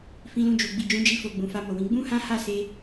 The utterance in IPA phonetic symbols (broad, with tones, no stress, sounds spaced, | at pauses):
f ĩ˧ l ũ˧ d͡ʒ u˨ ɡ͡b i˨ d͡ʒ ũ˨˦ d͡ʒ i˧ f o˨ ɡ͡b ũ˨ f a˧ m o˨ w ĩ˨˦ ɡ͡b ũ˦ h ã˦ h a˦˨ s e˧